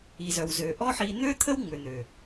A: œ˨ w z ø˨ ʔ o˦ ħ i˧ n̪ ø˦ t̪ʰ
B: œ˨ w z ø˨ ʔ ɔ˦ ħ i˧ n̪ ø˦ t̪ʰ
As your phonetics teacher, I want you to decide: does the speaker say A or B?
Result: B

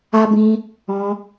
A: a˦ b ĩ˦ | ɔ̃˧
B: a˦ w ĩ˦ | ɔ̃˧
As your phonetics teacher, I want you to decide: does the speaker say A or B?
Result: A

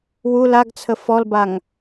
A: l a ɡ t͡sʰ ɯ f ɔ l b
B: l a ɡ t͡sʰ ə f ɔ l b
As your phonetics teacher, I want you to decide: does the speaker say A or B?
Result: B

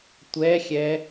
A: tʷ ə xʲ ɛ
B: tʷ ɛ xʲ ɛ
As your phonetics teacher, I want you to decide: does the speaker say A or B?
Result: B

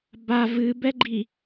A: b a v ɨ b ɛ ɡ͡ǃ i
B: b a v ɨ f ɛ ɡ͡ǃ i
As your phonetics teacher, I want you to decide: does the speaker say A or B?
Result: A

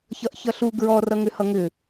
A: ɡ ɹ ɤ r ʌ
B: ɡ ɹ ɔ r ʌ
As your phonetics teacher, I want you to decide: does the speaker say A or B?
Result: B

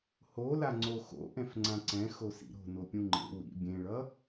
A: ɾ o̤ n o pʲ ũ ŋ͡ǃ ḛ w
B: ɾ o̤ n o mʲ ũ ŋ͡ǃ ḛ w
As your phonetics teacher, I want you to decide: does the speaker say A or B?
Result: A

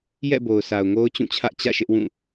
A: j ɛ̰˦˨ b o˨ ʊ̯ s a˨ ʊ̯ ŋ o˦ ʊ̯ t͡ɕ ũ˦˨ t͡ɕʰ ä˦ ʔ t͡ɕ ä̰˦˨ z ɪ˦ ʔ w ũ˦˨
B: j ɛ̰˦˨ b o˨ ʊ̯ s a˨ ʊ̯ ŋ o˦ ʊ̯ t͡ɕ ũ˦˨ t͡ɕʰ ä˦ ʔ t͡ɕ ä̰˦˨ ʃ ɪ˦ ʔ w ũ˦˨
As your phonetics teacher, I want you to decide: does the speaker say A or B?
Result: B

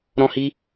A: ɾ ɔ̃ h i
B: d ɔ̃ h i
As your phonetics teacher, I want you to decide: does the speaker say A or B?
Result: A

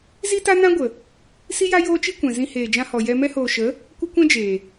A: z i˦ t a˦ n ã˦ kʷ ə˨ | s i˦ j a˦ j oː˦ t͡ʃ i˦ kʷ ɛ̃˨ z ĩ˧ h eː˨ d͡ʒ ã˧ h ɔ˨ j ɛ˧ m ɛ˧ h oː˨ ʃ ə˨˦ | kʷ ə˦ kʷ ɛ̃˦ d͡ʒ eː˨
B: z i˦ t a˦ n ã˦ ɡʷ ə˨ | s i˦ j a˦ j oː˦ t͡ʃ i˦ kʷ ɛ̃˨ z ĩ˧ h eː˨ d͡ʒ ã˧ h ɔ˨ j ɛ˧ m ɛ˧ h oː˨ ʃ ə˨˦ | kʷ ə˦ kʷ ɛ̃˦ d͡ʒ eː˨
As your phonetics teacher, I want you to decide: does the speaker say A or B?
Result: B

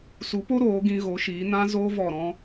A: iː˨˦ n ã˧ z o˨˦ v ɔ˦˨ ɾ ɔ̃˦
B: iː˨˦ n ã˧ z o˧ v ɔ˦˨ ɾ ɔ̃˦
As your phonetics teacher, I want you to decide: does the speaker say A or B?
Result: B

